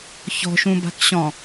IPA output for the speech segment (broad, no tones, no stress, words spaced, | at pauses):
çɔ̤ʃũba̤k ɕɔ̃